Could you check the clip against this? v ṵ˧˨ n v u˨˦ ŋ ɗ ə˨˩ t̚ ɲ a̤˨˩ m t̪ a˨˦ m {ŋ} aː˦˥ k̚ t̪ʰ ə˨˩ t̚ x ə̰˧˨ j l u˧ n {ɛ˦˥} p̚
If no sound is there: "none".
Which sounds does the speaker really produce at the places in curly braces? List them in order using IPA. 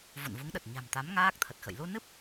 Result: ŋ, ɨ˦˥

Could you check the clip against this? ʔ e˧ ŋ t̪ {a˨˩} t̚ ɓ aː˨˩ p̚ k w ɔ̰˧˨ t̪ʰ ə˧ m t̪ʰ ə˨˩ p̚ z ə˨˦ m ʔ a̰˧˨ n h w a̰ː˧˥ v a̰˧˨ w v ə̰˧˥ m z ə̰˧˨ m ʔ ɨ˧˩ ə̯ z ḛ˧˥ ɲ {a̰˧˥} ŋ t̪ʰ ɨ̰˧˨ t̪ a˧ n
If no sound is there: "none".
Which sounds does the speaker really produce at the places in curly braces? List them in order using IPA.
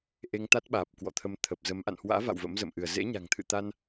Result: a˦˥, a̤˨˩

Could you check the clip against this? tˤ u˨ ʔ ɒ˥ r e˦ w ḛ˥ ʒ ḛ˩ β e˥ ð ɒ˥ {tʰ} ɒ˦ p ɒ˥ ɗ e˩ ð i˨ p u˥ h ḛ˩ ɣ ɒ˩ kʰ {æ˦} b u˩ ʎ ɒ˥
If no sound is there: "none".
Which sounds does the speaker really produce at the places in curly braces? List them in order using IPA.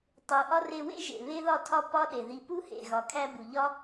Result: tʰ, æ˦

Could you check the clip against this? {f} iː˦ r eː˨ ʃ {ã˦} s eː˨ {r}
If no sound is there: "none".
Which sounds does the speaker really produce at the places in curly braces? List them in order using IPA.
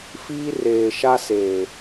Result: f, a˦, none

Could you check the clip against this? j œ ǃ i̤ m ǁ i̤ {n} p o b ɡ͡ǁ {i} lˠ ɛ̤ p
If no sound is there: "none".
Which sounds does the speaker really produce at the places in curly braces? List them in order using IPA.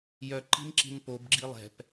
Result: n, i

